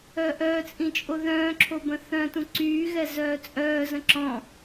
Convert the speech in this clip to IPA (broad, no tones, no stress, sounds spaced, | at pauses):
œ ʔ œː t͡sʼ ĩ t͡ʃʼ o ð œ̃ː ǁʰ o b ə̃ θ œ̃ t ũ ǀ yː ɣ ɛ z œː t͡sʼ œː z ə̃ ǁ ɔ̃